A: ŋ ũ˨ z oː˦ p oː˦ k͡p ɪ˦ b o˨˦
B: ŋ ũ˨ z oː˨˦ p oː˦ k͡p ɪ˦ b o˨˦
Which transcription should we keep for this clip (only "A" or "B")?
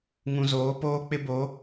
B